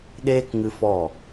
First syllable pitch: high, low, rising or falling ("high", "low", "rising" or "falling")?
high